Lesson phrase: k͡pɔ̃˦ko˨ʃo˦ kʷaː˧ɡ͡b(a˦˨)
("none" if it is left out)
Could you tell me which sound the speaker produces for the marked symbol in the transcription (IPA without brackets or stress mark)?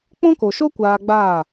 aː˦˨